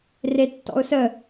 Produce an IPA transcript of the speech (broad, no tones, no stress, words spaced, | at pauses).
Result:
retːɔ̰ʊ̯sə